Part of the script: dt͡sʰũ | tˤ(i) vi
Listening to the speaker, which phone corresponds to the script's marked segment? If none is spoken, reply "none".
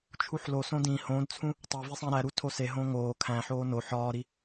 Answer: e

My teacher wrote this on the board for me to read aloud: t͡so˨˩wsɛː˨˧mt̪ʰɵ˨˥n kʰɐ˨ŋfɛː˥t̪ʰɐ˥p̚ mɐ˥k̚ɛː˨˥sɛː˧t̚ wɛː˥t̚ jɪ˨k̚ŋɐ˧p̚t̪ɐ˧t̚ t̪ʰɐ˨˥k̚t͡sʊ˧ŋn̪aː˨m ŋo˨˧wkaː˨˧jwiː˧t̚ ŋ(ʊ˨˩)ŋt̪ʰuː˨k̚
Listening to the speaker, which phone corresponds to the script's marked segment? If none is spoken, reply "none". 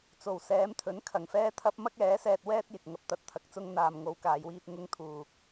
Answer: ʊ˧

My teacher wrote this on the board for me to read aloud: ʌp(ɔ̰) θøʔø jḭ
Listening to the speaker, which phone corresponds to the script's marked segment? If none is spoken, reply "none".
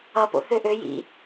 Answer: o̰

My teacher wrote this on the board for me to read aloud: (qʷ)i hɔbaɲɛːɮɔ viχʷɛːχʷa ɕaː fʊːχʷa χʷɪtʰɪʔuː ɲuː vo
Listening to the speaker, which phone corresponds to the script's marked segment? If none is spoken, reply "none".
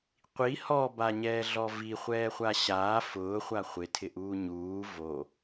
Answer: qʷ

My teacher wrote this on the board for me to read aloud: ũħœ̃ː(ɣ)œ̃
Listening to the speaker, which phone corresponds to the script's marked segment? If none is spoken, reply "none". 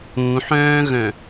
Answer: ɣ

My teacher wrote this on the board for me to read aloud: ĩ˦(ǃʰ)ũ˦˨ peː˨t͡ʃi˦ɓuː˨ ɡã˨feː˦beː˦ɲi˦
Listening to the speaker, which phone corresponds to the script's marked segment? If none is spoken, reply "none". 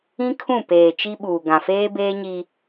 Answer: kʰ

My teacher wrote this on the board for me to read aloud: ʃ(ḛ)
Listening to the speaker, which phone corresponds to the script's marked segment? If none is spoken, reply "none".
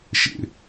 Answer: ḛ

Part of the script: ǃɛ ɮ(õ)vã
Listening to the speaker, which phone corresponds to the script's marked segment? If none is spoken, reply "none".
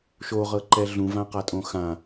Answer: ũ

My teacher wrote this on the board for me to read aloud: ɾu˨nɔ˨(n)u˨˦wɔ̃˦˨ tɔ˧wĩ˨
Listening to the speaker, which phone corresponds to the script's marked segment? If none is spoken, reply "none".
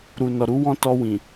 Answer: ɾ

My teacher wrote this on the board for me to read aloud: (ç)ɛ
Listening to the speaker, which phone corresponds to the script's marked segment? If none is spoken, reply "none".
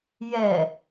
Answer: j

